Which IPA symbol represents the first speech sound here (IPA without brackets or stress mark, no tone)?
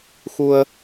x